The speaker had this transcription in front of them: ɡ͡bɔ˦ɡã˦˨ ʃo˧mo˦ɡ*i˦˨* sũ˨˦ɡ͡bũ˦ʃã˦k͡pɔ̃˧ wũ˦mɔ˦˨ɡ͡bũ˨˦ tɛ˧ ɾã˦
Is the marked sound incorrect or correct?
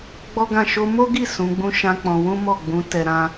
correct